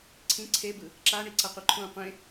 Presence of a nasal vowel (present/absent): present